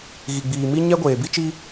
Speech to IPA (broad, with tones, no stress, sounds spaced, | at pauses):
ɣ i˨ ɡ͡b iː˨ m i˦ ɲ ɛ˦ ɡʷ eː˨ b i˦ t͡ʃ i˦